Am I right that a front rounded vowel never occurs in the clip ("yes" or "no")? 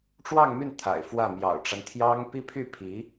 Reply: no